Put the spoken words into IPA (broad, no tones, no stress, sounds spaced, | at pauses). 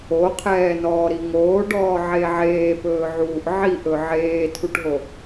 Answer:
o qʰ ɛː n ɔː ɾ i ŋ oː ɖ ɔː ʕ e ʕ eː p ɵː ʕ uː ʔ ʕ i ʔ ɵ ʕ eː tʰ u ʈ ɦ o